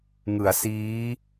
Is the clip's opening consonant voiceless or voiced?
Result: voiced